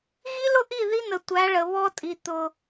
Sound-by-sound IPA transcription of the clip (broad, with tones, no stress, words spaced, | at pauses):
ɣi˦lʊ˦ʔi˦˨ ði˦n̪ə˨tʷæ˨˦ ɭə˨βɔ˦tʼi˨ t̪ʊ˨